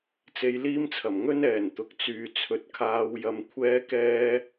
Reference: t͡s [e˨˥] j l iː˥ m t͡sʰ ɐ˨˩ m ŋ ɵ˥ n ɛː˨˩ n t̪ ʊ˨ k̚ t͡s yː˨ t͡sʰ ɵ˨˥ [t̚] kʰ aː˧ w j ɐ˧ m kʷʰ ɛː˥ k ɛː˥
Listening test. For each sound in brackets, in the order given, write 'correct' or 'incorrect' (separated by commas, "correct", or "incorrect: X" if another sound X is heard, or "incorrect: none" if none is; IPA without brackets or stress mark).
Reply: incorrect: e˧, correct